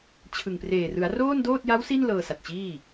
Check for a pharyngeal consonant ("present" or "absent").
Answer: absent